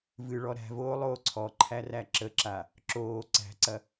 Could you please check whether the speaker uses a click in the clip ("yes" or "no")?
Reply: yes